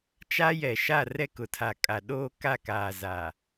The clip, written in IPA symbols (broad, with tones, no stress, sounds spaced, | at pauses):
t͡ʃ a˦ j ɛ˨ ʃ a˦˨ r ɛ˦ k ʊ˨ tʰ a˨ kʼ a˨ ɗ oː˦ k a˦˨ k aː˨ z a˨